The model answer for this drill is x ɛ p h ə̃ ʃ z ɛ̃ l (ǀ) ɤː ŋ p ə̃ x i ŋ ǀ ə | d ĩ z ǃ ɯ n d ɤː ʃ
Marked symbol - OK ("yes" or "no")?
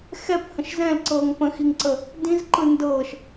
yes